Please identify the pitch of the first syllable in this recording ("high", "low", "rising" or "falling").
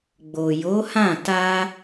low